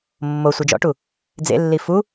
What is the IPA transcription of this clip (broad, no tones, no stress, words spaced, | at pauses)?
mːosʷɯ d͡ʒɔ̰ʈu | d͡zḛlːi fu